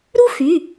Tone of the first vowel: high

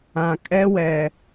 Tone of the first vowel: low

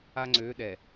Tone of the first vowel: high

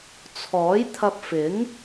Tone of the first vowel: rising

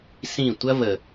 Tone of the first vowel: falling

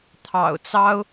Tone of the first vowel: low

